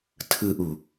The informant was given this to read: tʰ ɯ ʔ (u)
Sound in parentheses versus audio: correct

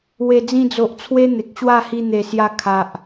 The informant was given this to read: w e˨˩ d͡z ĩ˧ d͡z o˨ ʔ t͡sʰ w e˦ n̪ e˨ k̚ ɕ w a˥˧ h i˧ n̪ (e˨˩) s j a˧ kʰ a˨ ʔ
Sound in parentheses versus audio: correct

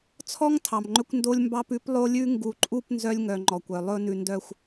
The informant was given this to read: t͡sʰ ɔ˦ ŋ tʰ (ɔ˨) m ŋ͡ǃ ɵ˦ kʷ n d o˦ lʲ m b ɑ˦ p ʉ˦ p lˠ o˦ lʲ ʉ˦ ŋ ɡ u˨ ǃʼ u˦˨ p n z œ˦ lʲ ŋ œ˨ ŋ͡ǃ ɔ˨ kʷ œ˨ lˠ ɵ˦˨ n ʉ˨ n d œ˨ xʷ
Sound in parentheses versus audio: incorrect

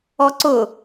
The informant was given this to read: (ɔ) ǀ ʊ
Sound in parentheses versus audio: correct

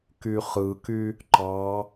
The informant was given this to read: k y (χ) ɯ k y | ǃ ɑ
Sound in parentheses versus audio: correct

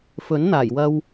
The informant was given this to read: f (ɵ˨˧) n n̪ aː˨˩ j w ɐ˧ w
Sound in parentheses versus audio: incorrect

